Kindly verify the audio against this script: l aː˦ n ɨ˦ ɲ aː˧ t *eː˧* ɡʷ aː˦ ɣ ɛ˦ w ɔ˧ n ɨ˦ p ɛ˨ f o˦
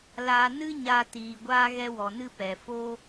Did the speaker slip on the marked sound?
yes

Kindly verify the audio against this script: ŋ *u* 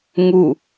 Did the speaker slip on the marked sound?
no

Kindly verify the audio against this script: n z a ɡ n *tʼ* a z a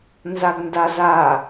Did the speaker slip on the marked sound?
yes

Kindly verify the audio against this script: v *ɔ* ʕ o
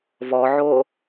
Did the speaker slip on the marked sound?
no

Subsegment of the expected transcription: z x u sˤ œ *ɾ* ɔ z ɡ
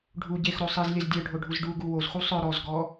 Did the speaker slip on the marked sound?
no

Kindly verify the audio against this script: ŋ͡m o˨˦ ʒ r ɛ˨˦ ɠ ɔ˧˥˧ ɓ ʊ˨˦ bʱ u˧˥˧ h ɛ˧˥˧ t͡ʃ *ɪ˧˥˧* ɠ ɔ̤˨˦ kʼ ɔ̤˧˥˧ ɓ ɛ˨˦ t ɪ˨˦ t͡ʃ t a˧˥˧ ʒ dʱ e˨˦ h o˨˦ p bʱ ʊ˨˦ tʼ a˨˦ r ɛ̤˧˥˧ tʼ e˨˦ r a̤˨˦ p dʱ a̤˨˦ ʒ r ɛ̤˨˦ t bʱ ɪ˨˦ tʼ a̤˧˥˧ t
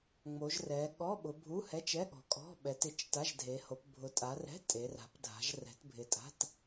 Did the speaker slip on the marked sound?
yes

